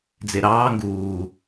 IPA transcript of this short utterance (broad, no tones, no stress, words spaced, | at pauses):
d͡zeɾɑː ŋɡuː